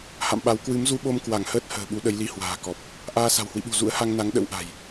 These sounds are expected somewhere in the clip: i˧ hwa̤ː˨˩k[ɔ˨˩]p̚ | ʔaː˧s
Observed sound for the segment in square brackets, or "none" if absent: ɔ˨˩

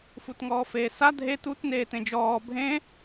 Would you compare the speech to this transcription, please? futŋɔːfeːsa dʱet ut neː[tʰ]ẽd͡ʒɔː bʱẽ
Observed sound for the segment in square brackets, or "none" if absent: t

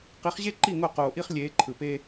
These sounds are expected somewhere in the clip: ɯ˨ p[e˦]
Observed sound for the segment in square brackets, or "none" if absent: e˦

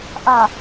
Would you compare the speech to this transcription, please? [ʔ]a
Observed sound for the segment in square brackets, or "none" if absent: ʔ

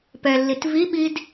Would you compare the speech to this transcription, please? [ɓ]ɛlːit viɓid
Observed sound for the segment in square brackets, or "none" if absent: p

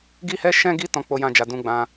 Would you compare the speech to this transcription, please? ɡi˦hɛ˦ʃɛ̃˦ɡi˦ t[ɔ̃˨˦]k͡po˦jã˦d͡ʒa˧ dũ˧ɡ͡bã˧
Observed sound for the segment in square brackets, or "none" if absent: ɔ̃˦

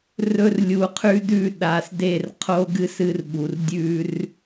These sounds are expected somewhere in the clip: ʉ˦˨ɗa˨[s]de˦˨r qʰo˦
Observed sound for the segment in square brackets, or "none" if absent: s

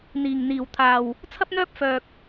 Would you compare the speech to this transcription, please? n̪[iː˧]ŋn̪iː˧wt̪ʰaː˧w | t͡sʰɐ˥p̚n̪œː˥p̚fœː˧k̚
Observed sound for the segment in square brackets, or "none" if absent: iː˧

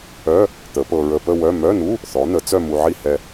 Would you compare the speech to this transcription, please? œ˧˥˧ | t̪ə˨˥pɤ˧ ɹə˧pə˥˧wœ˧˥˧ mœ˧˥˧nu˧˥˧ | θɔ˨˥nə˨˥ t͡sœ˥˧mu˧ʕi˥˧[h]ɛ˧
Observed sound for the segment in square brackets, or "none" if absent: h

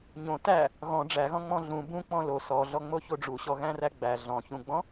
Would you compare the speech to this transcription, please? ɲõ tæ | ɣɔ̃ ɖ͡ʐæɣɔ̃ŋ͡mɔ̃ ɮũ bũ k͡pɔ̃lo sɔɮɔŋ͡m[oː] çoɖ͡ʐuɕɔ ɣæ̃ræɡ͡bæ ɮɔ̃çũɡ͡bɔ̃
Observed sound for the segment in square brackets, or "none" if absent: o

